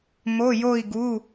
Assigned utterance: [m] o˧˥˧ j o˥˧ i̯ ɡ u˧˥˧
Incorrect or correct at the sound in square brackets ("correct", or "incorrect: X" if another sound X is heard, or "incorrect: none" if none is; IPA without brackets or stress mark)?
correct